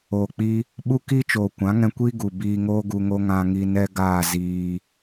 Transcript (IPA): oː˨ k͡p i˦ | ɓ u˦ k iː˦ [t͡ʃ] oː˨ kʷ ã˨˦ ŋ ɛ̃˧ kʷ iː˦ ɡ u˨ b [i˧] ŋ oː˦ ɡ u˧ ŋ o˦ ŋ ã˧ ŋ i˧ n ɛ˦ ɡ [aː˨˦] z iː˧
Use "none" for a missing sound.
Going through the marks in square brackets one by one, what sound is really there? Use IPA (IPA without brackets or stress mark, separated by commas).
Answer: t͡ʃ, iː˧, aː˦˨